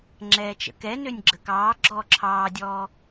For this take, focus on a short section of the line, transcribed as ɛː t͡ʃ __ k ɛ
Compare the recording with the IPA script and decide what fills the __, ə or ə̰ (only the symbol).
ə̰